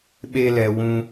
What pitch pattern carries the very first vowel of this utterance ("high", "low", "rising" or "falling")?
high